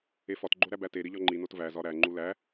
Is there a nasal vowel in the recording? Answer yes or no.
no